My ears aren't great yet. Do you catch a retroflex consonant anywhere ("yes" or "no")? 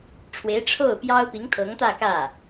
yes